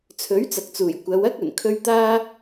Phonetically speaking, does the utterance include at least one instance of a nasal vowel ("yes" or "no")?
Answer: no